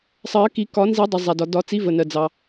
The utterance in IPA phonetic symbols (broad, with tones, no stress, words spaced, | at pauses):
sˤɜ˨˩˦ki˨˩˦ kɒ˨˩˦nzi˨˩˦dˤə˩ zˤæ˩dɒ˩ dɒ˨˩˦t͡si˨˥və˩ nɜ˩d͡zɑ˩